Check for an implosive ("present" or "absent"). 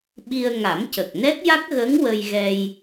present